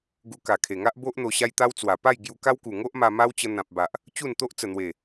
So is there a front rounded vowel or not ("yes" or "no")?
no